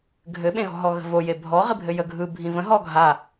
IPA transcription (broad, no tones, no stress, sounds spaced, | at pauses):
ɡʱ ɘ ɓ ẽ ɣ ɔ̤ ɦ ɔ ɣ ə̤ v o j e bʱ ɔ ʁ i bʱ ɘ j ə ɡʱ ɯ bʱ ĩ v ə̃ ɦ ɔ ɡʱ a